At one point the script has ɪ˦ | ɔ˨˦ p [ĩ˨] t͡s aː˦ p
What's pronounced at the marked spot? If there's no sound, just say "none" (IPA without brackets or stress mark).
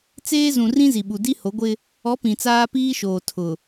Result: ĩ˨